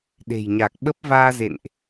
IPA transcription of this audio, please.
ɗ e̤˨˩ j ɲ a˨˩ k̚ ɓ ə˦˥ p̚ v aː˧ z ḛ˧˨ n ʔ

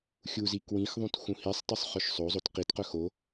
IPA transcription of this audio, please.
xʲ u z i k w ĩ x ðˤ ũ t x ũ h i sˤ tˤ u sˤ χ œ ʃ sˤ o zˤ o t q i t q œ x o

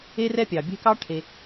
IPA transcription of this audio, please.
e˥ r ɛ˥ pʲ ɑ˩ bʲ ɛ̤˥ k ɑ˥ ʈʰ e˨

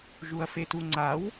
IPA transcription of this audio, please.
ʒ u ɐ̯ f e t u ŋ͡ǀ a w

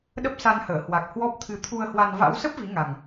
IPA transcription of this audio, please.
ɗ ə˦˥ p̚ s a˧ n h əː˧˩ h w a˨˩ k̚ h w ɔ˦˥ p̚ t̪ʰ ɨ˧ t̪ʰ u˧ ə̯ h w a˧ n v a̰˧˥ w s ə˦˥ p̚ v i˨˦ ŋ a˨˩ ŋ

